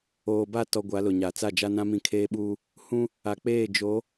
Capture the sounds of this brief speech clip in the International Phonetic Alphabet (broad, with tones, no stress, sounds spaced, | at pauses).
oː˨ b a˦˨ t ɔ˨ ɡʷ a˨˦ l ʊ˨ ɲ a˨ t͡s a˦˨ d͡ʒ a˦ n ã˦ m ĩ˨ kʰ eː˦ ɓ uː˦ | h ũ˦ | a˨ k͡p eː˦˨ d͡ʒ o˨˦